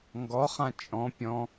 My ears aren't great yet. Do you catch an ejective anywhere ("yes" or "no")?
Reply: yes